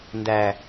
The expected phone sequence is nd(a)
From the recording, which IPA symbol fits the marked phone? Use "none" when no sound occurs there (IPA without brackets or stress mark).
æ